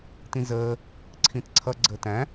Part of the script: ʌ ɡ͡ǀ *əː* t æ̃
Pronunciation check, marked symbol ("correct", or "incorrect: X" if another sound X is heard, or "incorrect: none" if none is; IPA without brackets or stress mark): correct